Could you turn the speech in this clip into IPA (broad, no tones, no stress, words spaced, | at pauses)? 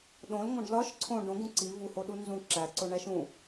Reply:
ɗõlŋõɖ lɒʃ ǀʰõ ɖõɡũ ǀi vuhoɗu nzũ ǁæǀoɳæʃ ũ